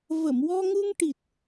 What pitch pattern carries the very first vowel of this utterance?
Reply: low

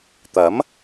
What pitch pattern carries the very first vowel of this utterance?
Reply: rising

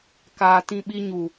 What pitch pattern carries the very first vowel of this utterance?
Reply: low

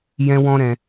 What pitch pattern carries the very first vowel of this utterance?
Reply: high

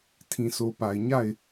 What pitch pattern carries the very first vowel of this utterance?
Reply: low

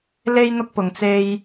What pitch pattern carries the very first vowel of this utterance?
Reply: high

